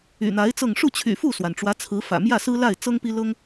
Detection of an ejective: absent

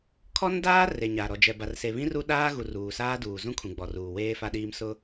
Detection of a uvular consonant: absent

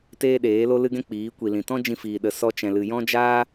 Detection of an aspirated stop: absent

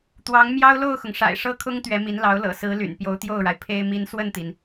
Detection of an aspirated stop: present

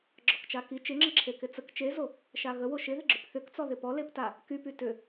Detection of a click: present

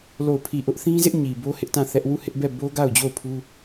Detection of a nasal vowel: present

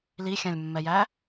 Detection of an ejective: absent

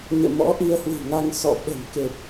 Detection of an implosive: present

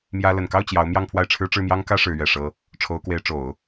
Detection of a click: absent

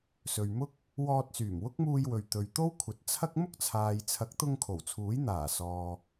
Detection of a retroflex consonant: absent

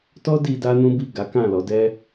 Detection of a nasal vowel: present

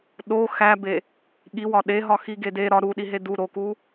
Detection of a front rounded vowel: absent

